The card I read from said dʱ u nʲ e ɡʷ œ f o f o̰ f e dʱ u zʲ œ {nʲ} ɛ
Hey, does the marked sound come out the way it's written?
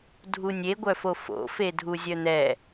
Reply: no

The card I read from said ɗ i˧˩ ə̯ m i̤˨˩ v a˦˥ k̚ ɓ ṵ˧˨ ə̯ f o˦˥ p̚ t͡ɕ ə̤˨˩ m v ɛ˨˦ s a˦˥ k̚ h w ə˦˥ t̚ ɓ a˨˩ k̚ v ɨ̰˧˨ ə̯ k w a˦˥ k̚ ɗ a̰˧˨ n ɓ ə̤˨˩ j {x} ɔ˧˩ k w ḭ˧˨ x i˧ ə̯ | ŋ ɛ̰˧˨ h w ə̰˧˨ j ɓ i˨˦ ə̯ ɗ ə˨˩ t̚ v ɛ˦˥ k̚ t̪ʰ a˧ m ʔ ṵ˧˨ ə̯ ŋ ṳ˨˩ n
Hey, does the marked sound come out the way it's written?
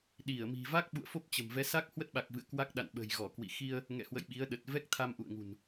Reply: no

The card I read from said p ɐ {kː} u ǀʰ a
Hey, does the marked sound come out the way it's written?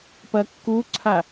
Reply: yes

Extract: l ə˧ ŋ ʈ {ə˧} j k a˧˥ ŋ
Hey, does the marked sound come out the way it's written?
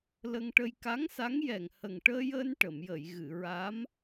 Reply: yes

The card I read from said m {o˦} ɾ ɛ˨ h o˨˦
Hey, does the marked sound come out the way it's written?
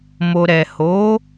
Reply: no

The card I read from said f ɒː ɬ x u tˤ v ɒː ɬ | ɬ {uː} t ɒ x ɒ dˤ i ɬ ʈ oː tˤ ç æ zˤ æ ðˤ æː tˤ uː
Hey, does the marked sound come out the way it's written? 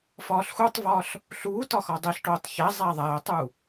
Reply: yes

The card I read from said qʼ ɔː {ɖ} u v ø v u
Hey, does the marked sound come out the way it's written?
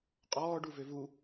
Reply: yes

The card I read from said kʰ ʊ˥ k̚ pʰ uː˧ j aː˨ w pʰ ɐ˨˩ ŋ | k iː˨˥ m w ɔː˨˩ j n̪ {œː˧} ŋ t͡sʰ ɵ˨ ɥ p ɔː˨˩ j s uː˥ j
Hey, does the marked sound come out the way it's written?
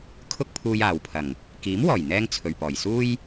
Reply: no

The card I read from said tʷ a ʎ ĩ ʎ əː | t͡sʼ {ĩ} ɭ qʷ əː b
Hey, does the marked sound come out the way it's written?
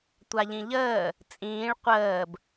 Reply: no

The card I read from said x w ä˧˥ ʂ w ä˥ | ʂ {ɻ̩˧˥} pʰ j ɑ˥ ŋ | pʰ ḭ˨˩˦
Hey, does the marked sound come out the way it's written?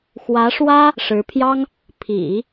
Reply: yes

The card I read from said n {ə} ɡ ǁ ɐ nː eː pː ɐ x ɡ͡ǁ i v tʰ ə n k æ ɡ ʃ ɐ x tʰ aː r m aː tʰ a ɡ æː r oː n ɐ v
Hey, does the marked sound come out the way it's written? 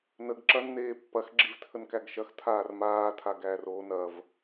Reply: yes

